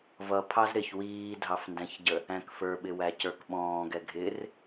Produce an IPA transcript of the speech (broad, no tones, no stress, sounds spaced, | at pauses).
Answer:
v ʌ pʰ ɑ z ɾ ɪ ç w iː dʱ ɑ f n d æ̃ ç ɟ ə | æ̃ k f ə˞ ɓ ɪ w æ c ə˞ k ɓ ɔ̃ː ɡ ɛ ɡʱ ɪ r